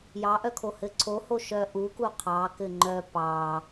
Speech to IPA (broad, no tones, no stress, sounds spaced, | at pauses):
j ɑ ʔ œ kʰ o h ɘ ǀʰ o h o ʃ œ ʔ u k u qʰ ɑ k ɘ ŋ͡ǃ œ p ɑ